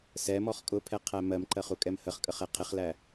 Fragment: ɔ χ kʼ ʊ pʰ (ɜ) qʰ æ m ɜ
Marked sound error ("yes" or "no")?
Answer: yes